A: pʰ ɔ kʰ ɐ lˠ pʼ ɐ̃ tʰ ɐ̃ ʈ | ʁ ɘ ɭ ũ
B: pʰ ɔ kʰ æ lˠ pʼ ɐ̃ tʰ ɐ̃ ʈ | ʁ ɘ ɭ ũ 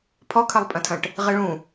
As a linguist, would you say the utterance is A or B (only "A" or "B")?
A